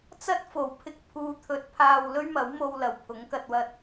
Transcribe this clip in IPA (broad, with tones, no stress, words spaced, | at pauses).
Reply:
t͡sɐ˥t̚fo˨˩w pʰɪ˧k̚pʰuː˨˧t̪ʰɵ˨t̚ pʰaː˧w lɵ˥ɥmɐ˨˥wmo˧wlɐ˨˩w pʰʊ˨˥ŋkɐ˧t̚wɐ˧t̚